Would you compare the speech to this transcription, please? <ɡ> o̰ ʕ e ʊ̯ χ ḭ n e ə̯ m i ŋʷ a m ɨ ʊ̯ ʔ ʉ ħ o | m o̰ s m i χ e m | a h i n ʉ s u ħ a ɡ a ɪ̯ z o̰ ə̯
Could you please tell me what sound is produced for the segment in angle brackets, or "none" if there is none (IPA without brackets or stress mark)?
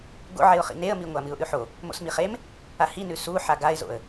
ɡ